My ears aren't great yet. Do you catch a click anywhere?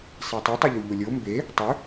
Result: no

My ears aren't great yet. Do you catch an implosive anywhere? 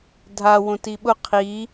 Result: yes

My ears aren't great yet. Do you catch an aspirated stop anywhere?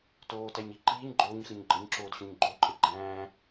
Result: no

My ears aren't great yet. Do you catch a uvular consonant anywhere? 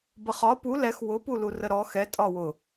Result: yes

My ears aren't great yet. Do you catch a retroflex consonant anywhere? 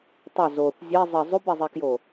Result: no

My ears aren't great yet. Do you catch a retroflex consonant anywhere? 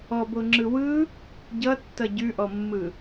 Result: no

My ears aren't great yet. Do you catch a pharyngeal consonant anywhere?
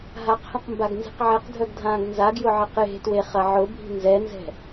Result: yes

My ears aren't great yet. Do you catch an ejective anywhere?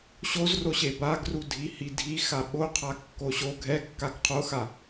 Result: no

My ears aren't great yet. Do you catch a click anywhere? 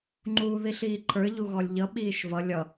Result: yes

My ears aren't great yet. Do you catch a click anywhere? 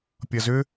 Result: no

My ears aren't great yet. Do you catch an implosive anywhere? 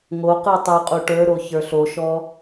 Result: no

